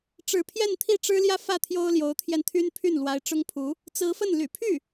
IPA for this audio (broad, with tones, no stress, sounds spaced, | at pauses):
ʈ͡ʂ ɻ̩˧˥ pʰ j ɛ˥˧ n t̪ʰ i˥˩ ʈ͡ʂ ɻ̩˥ l j ä˥ f ä˥˩ t̪ʰ j o˥ ʊ̯ l j o˧˥ ʊ̯ t̪ʰ j ɛ˧ n t̪ʰ y˥ n pʰ y˥˩ n l w a˧˥ ɪ̯ ʈ͡ʂ ʊ˥ ŋ pʰ u˧˥ | t͡s ɹ̩˧˥ f ə˥˩ n l y̰˨˩ pʰ y˥˩